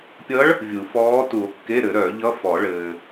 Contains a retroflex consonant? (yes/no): yes